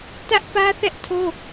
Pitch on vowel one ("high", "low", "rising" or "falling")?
high